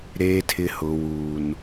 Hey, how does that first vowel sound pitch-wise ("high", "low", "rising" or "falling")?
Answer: low